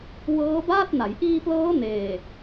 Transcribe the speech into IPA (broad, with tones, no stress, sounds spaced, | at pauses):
w ɤː˦˥ b aː˥˩ t̚ n a˩˦ j ʔ iː˧ p l ɤː˦˥ n eː˨˩